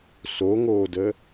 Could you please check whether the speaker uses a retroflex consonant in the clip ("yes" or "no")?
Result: no